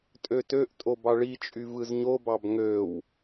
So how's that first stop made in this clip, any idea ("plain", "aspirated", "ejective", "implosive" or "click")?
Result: ejective